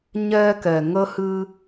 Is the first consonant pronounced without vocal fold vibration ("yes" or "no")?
no